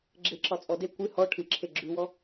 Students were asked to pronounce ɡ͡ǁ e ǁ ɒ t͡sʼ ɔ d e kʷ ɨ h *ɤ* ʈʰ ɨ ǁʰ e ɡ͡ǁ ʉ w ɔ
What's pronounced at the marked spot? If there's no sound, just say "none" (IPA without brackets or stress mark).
ɔ